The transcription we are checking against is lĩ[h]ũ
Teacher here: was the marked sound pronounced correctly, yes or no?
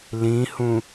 yes